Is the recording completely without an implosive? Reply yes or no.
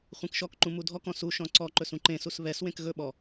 no